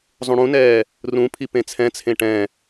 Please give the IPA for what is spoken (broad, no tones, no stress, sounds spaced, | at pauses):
zˤ ũ ɽ ũ n ɛː | r ũ pʰ i p ẽ t͡sʰ ɛ̃ t͡sʰ ẽ ʈ ɛ̃